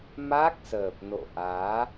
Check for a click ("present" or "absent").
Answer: absent